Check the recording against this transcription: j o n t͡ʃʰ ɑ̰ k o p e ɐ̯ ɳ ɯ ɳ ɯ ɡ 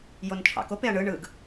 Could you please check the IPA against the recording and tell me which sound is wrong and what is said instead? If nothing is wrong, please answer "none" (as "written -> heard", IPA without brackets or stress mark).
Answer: none